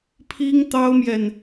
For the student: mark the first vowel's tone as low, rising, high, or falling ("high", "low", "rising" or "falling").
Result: high